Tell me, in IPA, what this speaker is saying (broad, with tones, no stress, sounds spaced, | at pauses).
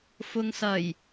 f ʊ˨ ŋ s ɐ˨˩ j